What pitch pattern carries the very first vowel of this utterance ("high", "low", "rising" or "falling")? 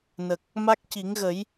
low